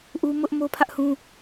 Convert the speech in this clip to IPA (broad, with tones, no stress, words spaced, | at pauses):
ʔu˦mʊ˦ʔ mo˦pʰä˦ʔhũ˦